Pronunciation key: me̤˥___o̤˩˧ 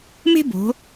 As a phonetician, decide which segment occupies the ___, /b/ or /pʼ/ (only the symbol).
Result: b